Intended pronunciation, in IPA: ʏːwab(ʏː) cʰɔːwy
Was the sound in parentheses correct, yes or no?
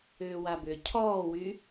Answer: no